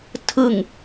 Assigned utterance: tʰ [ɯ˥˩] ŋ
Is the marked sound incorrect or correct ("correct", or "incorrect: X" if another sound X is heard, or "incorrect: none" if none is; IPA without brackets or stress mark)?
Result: incorrect: ɯ˨˩